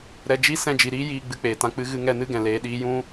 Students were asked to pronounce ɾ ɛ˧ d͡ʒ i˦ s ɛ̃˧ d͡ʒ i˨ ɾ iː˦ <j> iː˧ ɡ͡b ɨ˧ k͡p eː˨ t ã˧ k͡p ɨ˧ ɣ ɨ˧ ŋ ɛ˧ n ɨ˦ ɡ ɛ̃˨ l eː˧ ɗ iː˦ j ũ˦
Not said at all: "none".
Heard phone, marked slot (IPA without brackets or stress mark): j